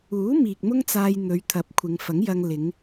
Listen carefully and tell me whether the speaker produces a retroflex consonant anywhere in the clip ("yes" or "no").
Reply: no